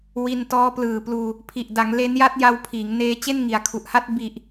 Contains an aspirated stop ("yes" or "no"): yes